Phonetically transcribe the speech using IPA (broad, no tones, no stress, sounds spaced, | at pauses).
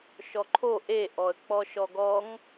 ʃ ɔ ǃʰ o ʔ e ʔ ɔ ə̯ k͡p ɔ ʃ ɔ ɡ ɔ ŋ